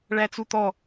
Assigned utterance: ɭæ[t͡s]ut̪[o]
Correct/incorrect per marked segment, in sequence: correct, incorrect

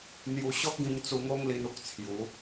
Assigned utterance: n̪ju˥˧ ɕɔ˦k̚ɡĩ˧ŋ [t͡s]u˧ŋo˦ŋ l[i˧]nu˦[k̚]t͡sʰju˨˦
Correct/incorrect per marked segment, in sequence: correct, correct, correct

